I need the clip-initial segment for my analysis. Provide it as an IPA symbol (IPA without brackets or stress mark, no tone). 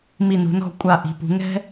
m